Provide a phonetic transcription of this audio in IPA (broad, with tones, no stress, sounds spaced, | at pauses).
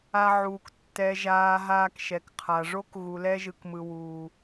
a˧ ʕ uː˨ k tː ɛ˨ ʒ aː˨ ɦ aː˦ k ʃ ɛ˨ k qʰ a˨ ʐ o˦ k ɣ u˨ l ɛ˦ ʒ ɯ˨ k m ɯ˨ w uː˨